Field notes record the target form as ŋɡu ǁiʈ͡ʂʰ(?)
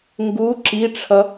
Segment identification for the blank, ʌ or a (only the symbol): ʌ